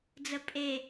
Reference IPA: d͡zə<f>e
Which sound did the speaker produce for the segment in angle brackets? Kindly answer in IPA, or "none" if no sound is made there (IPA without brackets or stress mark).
pʼ